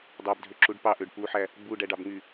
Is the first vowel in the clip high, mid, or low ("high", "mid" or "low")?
low